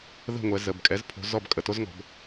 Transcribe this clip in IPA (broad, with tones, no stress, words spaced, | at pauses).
ðə̤˥˨ŋʷɛ˨˦ zə˩˧˩bkʼɛ˨˦zpʰo̤˨˦ zɔ˥˨b kʼə˧˩ to˥zŋɔ̤˨˦b